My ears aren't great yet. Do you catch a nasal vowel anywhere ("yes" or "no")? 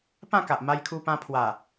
yes